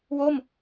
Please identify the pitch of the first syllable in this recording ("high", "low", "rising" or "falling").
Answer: falling